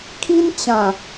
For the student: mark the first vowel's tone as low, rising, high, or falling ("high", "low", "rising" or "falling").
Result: high